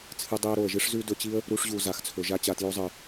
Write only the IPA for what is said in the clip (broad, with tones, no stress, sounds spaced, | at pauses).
t͡sʰ ɨ˧ dˤ i˧ ə̯ ɾ o˨ ə̯ ʒ ɨ˦ ʂ z ʉ˦ d ɵ˧ t͡ɕ i˦ ə̯ | ɾ u˧ ʂ ʑ u˨ z a˨ x t͡sʰ ɵ˨ ʒ a˦ t͡ɕ a˨ t j o˧ zˤ ɨ˨